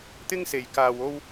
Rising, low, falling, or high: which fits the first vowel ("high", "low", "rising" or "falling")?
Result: high